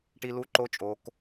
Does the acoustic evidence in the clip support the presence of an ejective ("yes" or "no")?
yes